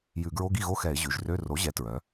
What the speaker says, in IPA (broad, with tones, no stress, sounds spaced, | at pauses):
j ʉ˧˩˧ ɡ ɹ o˧˥˧ ɡ i˥˩ ɣ o˧˥˧ x ɛ˧˩˧ ɪ̯ ʑ ʉ˩˧˩ ʒ r ø˧˥˧ r o˩˥ ʑ ɛ˩˥ t ɹ œ˩˧